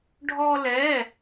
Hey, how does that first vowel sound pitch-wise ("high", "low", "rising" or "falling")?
high